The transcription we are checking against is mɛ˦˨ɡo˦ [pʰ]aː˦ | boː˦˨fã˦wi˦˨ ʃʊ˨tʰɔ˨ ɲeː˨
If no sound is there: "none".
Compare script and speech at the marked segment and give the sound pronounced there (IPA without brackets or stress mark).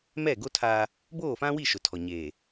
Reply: tʰ